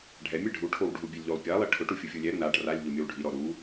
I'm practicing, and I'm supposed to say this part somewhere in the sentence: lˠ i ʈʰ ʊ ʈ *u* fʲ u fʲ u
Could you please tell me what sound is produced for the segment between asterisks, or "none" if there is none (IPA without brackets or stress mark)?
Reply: u